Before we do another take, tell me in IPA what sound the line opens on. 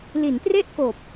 l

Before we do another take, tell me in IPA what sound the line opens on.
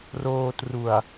r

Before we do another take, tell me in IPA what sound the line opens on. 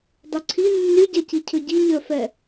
dˤ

